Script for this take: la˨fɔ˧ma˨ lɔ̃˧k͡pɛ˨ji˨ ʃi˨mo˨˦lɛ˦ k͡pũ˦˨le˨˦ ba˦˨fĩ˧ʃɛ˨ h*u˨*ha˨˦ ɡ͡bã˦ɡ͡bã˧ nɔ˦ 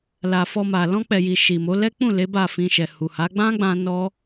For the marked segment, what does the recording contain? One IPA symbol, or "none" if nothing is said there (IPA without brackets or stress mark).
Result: u˨